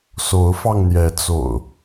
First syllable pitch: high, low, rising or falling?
rising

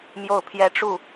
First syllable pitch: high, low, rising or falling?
falling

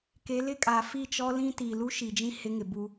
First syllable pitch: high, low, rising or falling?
rising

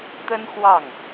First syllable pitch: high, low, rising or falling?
high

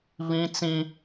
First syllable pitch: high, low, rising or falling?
high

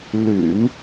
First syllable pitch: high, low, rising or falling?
low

